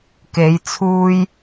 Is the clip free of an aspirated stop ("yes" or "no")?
no